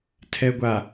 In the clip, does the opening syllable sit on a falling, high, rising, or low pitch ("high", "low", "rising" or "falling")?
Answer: low